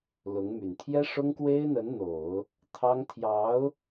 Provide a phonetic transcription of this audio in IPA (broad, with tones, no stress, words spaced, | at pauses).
lʊ˧˥ŋmy˨˩n t̪ʰjɛ˥ʂʊ˥ŋkwe˥ɪ̯n̪ə˧˥n n̪o˨˩˦ʊ̯ | t̪ʰɑ˥ŋ t̪ʰjɑ˧˥ʊ̯